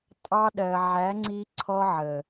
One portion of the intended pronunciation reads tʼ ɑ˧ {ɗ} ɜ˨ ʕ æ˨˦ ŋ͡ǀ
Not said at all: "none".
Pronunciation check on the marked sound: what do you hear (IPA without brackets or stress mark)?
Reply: ɗ